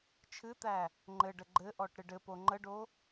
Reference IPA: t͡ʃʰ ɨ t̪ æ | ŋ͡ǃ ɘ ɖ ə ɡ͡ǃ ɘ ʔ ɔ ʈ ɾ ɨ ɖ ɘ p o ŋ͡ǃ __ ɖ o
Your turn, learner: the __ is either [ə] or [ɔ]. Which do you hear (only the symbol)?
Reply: ə